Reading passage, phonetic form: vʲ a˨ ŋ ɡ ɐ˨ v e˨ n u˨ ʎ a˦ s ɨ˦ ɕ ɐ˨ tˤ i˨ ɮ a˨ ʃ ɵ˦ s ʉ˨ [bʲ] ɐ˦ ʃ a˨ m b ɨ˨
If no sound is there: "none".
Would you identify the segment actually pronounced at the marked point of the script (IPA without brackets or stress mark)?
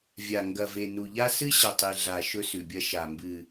bʲ